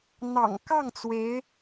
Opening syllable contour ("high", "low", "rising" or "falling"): low